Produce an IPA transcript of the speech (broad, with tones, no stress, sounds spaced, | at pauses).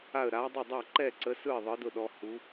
a˥˨ ə̯ ɾ a˧˥ dˤ ə˥˨ dˤ a˥˨ ǃ ɛ˥˨ ǀ ə˧˥ s ɯ˥˨ ɪ̯ ðˤ ɯ˧˥ d ʊ˥˨ ɗ ɔ˧˥ h u˧˥